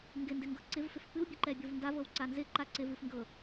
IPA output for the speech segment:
ŋɡɪndɪŋɡɤ ǀɪvfɪf pɨwbʲɨǃɛbʲov ndavɤwǀa nzɪǃa ǀɪvɨfŋɡɤ

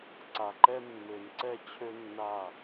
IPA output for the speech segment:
ǀa˨ǃɛ˦ mːø˨nǀɛ˦ t͡ɕʰø˦nːa˦˨

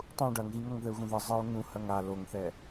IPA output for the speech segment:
tˤũ ɖɐŋɣĩŋ ɐŋðɘu̯ɣũðɘ zˤɨu̯ ŋũ hɐŋa loŋθɛ

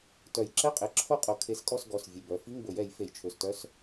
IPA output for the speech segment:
tœ˨˩˦j ǁɛ˧˥˧qʼe˩˧˩ ǁʰo˦˨qʼo˨˩˦ kʰe˩˥skʼɔ˦˨s ɡɔ˩˧˩s vʲʉ˩˧˩bœ˩˥ fi˧˥˧ŋbɵ˨˩˦jɛ˨˩˦j fe˨˩˦jt͡ʃʰø˩˧˩stœ˦˥s

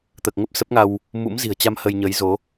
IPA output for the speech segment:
t̪əː˨˩k̚ŋə˦˥p̚ sə˦˥p̚ŋa˧w | mṵ˧˥mzi̤˨˩ə̯t͡ɕa˧m hə˧jɲə˨˦jzo˨˦

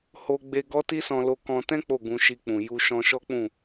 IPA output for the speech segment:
ho˧ ɡ͡be˧ɡɔ˦ti˦ sɔ̃˧lo˧ kɔ̃˧ tɛ̃˦ k͡po˦˨ɡũ˧ʃi˧k͡pũ˨ ju˧ʃɔ̃˧ʃɔ˦k͡pũ˦˨

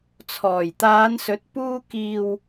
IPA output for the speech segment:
t͡sʰɔː˨˩jt̪aː˨˧nsɵ˨˥t̚ puː˧kiː˨w

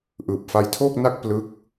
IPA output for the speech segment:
ʔɯː˨˩p̚fa˧jtʰoː˥˩k̚na˥˩k̚ plɯ˦˥k̚

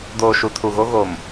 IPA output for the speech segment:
doː˨ʃu˨tʰu˨ɣo˦ ɣo˨m

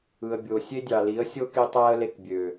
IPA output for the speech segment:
ɯ˨ə̯bʲo˨ sʲe˦dʲɑ˨li˨˦ə̯ sʲo˦ki˧ tˤæ˦ə̯le˧k bʲø˨

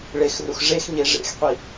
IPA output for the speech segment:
ɭexrux ʐexɲe ʐḛxqʷi

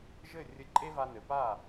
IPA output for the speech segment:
ʒɘ˥˩ rʲɘ˧ǃʼe˥va˧nɘ˩ pa˥˩

